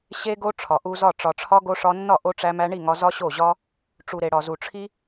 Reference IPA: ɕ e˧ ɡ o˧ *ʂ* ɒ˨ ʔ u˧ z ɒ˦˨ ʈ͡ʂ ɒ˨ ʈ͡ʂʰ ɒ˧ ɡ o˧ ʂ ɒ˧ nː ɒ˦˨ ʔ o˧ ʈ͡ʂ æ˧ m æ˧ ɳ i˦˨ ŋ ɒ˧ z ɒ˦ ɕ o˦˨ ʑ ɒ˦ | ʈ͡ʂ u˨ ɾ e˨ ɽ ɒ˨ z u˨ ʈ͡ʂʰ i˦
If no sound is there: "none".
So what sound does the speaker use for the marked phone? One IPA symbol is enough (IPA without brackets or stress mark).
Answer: ʈ͡ʂʰ